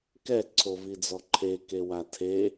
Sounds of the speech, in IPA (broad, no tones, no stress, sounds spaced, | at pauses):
k ɛ ǀʰ o v i d͡z ɔ ǃʰ e k e w a tʰ e